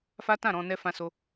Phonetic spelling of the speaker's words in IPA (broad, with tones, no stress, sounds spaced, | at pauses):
f a˦ t ã˦˨ ɾ ɔ̃˧ n ɛ˦ f ã˦ s o˦